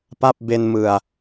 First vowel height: low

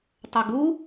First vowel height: mid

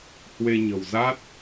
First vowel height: mid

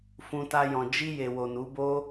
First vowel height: high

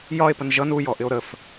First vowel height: low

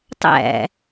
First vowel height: low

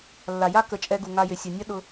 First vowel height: low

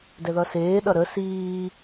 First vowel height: mid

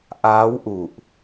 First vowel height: low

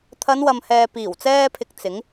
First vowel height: low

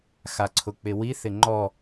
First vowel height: low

